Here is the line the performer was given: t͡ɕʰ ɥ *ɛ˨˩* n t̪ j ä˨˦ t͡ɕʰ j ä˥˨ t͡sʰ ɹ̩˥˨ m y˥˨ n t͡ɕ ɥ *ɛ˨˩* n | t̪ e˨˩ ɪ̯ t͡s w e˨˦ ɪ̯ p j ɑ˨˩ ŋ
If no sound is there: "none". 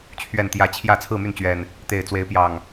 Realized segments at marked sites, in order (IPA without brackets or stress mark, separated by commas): ɛ˨˩, ɛ˨˩